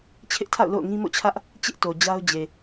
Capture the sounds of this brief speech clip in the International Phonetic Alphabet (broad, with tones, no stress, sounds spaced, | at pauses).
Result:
t͡ɕʰ ɪ˦ ʔ tʰ a̰˦˨ ʊ̯ l o̰˦˨ ʊ̯ ŋ ĩ˦ m o̰˦˨ t͡ɕʰ ä˦ ʔ | t͡ɕ ɪ˦ ʔ t o˨ d͡ʑ a˦ ʊ̯ d͡ʑ e˨